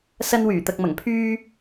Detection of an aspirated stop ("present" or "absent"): present